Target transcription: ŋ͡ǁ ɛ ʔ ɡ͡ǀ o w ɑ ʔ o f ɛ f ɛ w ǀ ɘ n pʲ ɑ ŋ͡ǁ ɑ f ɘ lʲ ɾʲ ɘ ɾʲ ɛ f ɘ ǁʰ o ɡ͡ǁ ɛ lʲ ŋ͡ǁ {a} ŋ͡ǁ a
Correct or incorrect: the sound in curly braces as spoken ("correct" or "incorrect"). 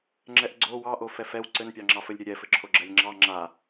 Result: incorrect